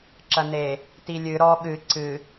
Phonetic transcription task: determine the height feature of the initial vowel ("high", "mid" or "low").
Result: low